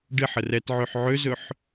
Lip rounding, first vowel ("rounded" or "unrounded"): unrounded